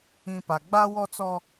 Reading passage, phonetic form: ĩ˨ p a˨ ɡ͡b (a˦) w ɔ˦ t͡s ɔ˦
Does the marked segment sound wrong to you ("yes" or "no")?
no